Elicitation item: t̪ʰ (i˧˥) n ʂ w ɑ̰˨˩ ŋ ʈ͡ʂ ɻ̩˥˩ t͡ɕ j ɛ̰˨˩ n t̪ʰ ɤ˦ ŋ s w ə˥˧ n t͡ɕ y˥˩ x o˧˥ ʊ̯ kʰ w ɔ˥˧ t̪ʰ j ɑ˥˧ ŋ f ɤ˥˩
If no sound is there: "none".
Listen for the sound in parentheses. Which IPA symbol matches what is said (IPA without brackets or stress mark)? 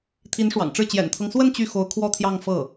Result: i˧˥